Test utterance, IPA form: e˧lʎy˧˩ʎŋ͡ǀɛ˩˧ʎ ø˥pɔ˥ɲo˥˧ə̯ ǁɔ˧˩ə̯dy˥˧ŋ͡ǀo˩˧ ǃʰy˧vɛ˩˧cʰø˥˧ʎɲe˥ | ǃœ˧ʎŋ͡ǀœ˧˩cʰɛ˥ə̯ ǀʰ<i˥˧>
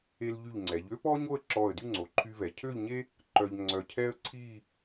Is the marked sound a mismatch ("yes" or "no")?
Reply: no